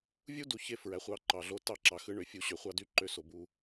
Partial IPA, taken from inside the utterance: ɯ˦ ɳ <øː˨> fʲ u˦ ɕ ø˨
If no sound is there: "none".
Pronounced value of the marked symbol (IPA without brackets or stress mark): ø˨